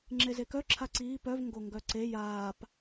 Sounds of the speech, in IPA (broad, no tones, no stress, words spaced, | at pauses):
ŋ͡ǁezekœ ǁʰaǀiː pœv ŋɡoŋɡœǀe jaːp